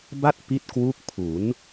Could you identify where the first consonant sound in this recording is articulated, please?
labial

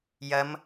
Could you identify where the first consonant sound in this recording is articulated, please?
palatal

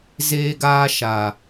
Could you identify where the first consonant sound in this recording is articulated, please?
alveolar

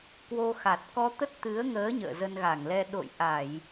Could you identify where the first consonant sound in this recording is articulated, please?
velar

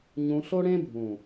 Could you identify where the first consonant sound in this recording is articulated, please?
palatal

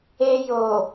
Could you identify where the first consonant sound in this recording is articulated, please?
palatal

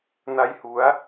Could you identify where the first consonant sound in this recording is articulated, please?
alveolar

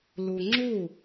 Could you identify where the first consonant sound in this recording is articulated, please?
alveolar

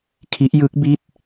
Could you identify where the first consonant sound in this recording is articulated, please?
velar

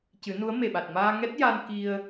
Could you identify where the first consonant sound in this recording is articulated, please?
palatal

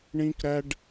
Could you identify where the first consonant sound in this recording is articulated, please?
retroflex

